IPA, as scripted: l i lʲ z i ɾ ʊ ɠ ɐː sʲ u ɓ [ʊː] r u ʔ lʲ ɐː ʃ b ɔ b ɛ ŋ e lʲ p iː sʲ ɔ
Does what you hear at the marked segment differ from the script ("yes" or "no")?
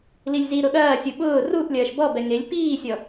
no